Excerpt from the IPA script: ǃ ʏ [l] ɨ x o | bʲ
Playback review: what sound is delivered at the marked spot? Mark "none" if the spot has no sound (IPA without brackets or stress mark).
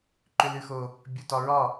l